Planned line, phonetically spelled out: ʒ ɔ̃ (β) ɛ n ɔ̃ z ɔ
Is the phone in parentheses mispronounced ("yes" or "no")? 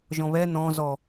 no